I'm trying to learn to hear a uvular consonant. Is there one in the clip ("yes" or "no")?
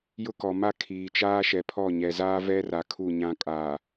no